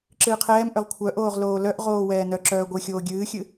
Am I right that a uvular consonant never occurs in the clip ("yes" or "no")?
no